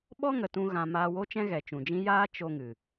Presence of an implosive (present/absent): present